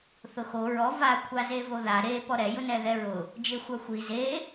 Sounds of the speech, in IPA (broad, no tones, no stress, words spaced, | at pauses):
θʊxo ɹɔ va kʷʰazevoða ɾe pɔɾɛ jʊnɛðɛɹʊ | d͡ʒexʷaxʷi ze